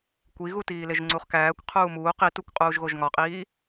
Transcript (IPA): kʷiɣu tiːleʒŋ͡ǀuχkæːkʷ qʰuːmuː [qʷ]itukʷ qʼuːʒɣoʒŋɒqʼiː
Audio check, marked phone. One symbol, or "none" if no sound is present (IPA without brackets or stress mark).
q